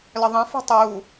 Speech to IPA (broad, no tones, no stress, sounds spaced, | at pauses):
l ə ðˤ ɛ̃ f o̤ tˤ uː